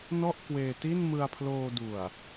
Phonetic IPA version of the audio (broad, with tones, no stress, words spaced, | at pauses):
nɔ˥˩ʔkweː˧ ti˥˩nmɯ˧a̯pʰloː˧du˨˩a̯